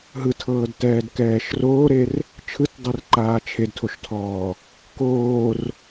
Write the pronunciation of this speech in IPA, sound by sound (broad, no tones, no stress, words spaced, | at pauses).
ɦɯtʰɤːd tɛːdkɛːʃroːɾer | t͡ʃʰɯtdˤer ǃaːt͡ʃʰedtʰoʃtʰɔː | koːr